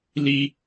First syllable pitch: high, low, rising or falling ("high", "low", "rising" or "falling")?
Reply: high